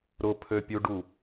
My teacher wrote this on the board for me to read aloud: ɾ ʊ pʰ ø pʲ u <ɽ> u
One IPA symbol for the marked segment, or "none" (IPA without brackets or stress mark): ɖ